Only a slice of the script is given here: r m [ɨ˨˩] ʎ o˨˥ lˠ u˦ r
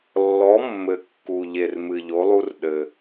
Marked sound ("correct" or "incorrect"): correct